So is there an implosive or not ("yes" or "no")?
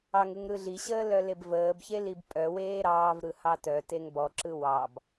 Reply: no